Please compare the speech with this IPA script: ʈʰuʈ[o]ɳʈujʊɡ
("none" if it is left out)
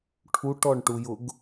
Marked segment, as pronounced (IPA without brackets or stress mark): ɔ